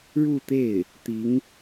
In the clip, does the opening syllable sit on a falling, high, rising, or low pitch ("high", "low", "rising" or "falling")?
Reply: falling